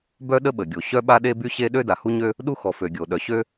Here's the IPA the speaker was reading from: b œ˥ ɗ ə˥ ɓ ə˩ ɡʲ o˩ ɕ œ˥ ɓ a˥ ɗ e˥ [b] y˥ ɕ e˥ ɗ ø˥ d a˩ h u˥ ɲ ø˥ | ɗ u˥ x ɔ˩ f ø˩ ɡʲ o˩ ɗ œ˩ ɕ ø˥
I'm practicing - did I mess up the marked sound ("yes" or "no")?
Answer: no